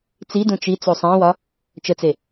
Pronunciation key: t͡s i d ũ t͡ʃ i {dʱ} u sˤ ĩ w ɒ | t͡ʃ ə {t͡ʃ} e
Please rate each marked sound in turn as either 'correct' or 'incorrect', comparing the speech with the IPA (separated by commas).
incorrect, incorrect